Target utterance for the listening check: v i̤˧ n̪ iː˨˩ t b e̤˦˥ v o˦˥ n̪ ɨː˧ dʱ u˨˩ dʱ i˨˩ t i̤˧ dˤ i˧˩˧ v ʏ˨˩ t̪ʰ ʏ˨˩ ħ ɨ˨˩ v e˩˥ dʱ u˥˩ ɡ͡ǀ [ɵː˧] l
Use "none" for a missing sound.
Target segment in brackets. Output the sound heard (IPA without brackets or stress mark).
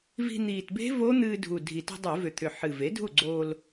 oː˧